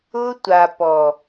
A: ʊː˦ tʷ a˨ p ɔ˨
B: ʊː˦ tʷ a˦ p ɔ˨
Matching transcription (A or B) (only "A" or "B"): A